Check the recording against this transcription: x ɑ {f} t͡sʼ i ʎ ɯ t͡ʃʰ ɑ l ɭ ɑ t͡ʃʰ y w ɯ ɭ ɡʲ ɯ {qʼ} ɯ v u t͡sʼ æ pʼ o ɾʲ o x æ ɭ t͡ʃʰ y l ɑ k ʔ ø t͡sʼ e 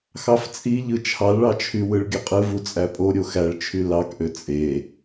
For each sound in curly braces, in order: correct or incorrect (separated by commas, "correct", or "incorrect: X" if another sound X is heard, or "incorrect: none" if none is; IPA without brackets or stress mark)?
correct, correct